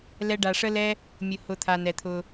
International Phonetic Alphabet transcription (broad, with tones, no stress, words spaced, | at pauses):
lɛ˧ɖa˨ʂə˦lɛ˦ | mʲʊ˨hʊ˨ t̪ʰa˨nɛ˨t̪ʰʊ˧